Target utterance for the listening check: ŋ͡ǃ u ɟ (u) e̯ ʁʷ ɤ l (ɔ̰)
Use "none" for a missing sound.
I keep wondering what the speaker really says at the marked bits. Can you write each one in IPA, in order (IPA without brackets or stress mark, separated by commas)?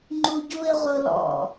u, ɔ̰